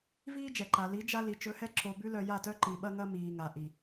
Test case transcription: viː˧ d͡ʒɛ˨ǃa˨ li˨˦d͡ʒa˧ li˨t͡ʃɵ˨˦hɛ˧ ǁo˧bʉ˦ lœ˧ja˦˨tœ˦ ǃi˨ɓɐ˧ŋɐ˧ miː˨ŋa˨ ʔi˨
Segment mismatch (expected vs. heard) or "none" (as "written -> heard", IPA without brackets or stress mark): none